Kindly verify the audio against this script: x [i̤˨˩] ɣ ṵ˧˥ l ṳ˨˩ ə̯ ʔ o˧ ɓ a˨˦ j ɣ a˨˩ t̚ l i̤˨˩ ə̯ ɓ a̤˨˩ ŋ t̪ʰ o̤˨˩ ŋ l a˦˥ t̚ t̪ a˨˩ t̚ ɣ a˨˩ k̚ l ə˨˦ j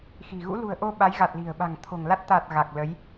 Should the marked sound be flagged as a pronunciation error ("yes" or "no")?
no